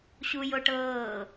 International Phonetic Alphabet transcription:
ɕuj oʈɤː

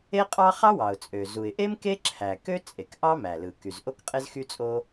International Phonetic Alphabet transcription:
e˥ qʼɑ˥ χɑ˥wɑ˩ʊ̯t͡sʼø˩ zu˩ɪ̯ʔe˥m ke˥ǁʰæ˩kø˥ t͡sʼe˩kʔɑ˥mæ˩lɯ˩ ky˩z ʔo˥kqʼe˥zxy˥t͡sʼo˥

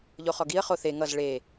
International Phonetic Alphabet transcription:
ʎoχɔɡiə̯ χoθe ŋʌz ɭe

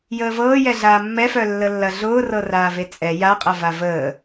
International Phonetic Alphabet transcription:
jəːvɤːjɛɮaː mːɛfœ lːəlːɐɮʊː rɤraːvet͡sʼɛ jaqʼɐva vəː

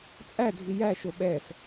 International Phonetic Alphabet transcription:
t͡sʼædʱi jæ ʃoɓɛs

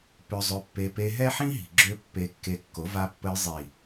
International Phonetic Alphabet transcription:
pø˧zˤø˧pːe˧ pe˧ɦɛ˦ħĩ˦ɦi̤˨ ɡ͡ǁø˦pːe˧kːe˧kːo˨˦ va˧pːə˧j zˤi˨

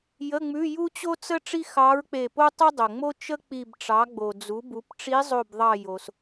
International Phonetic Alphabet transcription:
jə˧˥˧ŋ͡mʉ˧˥˧ ju˥t͡ɕo˥t͡sə˥ ʈ͡ʂi˥ xɑ˧˥ɹk͡pe˧˩po˥ tˤə˥dˤo˩ŋ͡mo˥ t͡ʃə˥ k͡pi˧˩bʈ͡ʂɑ˩˥ ɡ͡bo˩ d͡zu˩˥bu˩˥p ʈ͡ʂi˧˥zˤo˧˩bðˤɑ˧˩ jo˩s

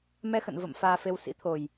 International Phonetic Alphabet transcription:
mɛ˧xə̰˧˨n və̰˧˨m faː˧fe˧w sḭ˧˥t̪ʰo˨˩j

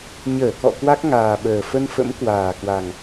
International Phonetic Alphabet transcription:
ɲəː˧˩kɔ̰˧˨ kwa˦˥k̚ŋaː˨˩ɓəː˨˩ fə˧nfə̰˧˥m kwaː˨˩kwa˨˩ŋ

